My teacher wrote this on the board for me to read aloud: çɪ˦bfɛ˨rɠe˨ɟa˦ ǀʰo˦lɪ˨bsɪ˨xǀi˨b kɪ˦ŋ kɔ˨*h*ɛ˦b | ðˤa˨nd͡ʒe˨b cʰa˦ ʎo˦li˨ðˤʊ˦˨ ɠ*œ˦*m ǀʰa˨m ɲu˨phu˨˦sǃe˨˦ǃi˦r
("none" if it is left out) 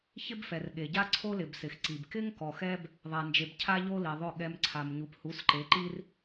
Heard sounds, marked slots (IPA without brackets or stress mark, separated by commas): x, ɛ˦